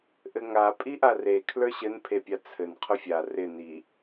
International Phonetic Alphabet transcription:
ʔ ɘ ŋ a pʼ i ʔ a r e kʰ l ə˞ ɕ ɘ n pʰ e pʲ a t͡sʰ ɘ n qʰ ʊ fʲ a r ɪ n i

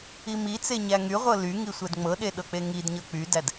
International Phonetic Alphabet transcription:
i m i t͡s e ɲ æ ŋ y ʁʷ ɤ l y ŋ i sʷ ɛ d ŋ͡m ɤ ɗ e ɗ ɤ k͡p e ŋ i d ɲ ɤ k͡p y d æ d

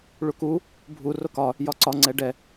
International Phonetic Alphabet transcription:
ɭ u k u | bʱ u r o k ɒ | j ɒ ǀ ɒ ŋ͡ǀ ɛ ɖ ɛ

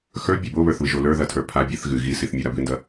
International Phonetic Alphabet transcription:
x ə˞ bʲ ɔ b o β ə˞ θ β ɨ ʒ o l ə˞ ð ɐ tʰ ə˞ pʰ a bʲ ɐ θ ɣ ɨ ɣ i s i θ mʲ ə˞ ɾ a b ɨ n d ɐ

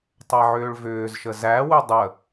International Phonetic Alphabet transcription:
tˤ æ ʕ ʏː ɭ v ʏː z ʃ ə z æ w ʏ dˤ ə

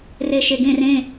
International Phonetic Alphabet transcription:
r e ʃ e ɡ ẽ r ẽ

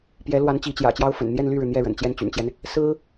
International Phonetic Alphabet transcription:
p j ɛ˧˥ l w a˧˥ n t͡ɕ i˧˥ t͡ɕ j ä̰˨˩ t͡ɕ j ɑ˥ ʊ̯ f ə̰˨˩ n n̪ j ɛ˥˧ n l y˥˩ ɻ ɻ̩˩ n̪ j ɛ˥˩ ɻ ə̰˨˩ n t͡ɕ j ɛ˥˩ n t͡ɕ y̰˨˩ n t͡ɕ j ɛ˦ n | s ɹ̩˥

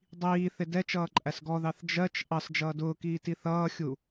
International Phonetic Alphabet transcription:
dˤ iː θ ɪ d ɛ t͡ʃ ʌː ǃʼ æ s ɡ ɔ ð ɑ θ d͡ʒ ɜ t͡ʃ ʔ ɑ s d͡ʒ ʌː d ʊː k iː t i θ ʌː xʲ u

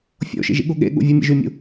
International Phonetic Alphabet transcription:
fʲ o̰ ʃ ḭ ʒ ḭ ɠ u ɠ ḛ ɠ ṵ vʲ u mʲ ḛ ʒ y mʲ ṵ

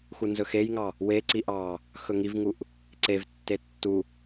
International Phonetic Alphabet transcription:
x u n z ɵ x e j ŋ ɑ | w e ǀ i ʔ ɑ | x ɵ ŋ i v ŋ u ʔ | ǀ e v tː e tː u

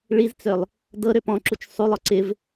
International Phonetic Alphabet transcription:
ɭ i z t͡s ø lˠ | d ɤ ɾ ø p ɔ̃ ǁ u t͡ʃ sˤ u lˠ ɔ ǀ ɪ v

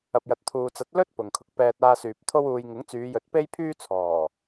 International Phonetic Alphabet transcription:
ɐ˨ p̚ j ɐ˨ t̚ t̪ʰ uː˨ t͡s ɐ˨˥ t̚ l ɵ˥ t̚ p ʊ˨ ŋ kʰ ʊ˨˥ k̚ p ɛː˧ t̚ aː˧ s yː˨ p̚ t̪ʰ o˥ w uː˧ j ŋ ɪ˨˥ ŋ t͡s yː˨˧ j ɵ˨˥ t̚ p e˥ j pʰ yː˥ t͡sʰ ɔː˨˩

